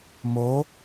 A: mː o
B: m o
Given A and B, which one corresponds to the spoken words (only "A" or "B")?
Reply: B